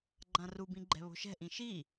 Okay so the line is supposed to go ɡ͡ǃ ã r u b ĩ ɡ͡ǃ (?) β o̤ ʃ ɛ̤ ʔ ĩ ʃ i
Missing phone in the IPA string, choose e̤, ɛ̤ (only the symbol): ɛ̤